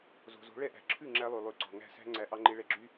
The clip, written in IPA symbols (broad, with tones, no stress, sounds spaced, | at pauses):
z o̤˨ z o̤˨˦ ɭ ɛ˧ ʔ æ̤˨ ǁʰ ʉ˦˨ ŋ͡ǁ æ˧ lˠ ʉ˨ lˠ ʉ˨˦ ǀ ɔ̤˨ ŋ æ̤˦˨ s æ̤˦ ŋ͡ǀ æ˨˦ ʔ ɑ˧ ŋ͡ǃ e˧ ɭ ɛ˧ ɡ͡ǁ y˦